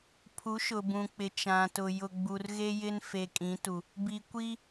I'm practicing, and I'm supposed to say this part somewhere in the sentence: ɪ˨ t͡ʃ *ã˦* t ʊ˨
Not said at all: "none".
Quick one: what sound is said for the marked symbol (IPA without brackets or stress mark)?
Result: ã˨